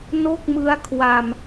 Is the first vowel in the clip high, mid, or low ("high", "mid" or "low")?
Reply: mid